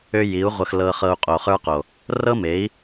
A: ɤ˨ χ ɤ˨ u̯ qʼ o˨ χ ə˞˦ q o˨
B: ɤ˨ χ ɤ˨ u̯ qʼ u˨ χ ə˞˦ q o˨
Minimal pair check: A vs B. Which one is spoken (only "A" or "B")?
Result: A